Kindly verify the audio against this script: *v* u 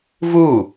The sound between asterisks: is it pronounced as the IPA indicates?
yes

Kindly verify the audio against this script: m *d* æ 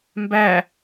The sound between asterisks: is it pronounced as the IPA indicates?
no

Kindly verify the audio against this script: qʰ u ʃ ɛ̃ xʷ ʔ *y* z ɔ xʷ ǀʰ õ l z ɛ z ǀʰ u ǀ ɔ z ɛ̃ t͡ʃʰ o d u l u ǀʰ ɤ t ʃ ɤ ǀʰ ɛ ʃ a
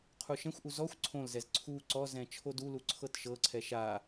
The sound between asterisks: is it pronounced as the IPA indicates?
no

